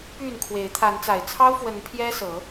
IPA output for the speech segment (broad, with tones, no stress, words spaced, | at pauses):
py˥˨nkʰwe˨˦ɪ̯ t̪ʰa˨˦n t͡sa˨˩ɪ̯t͡sʰɑ˦ʊ̯fwə˨˦n pʰjɛ˦sɤ˨˦